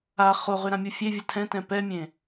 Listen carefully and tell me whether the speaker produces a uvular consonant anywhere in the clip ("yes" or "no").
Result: yes